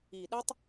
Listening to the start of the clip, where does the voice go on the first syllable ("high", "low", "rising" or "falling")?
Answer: low